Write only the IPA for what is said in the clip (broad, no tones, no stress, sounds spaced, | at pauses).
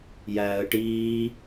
j æː ə̯ ʈ iː